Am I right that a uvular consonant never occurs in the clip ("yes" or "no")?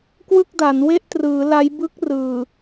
yes